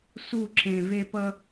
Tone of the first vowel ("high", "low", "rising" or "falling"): falling